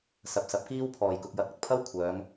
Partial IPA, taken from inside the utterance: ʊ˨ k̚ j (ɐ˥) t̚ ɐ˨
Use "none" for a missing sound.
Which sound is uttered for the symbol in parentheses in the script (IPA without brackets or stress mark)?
ɐ˨˥